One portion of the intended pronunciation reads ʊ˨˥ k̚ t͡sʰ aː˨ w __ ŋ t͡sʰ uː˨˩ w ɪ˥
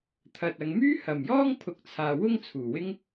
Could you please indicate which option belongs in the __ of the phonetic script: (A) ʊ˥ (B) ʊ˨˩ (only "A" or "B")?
A